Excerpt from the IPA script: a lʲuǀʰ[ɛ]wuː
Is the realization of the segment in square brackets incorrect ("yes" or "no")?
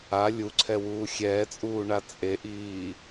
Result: no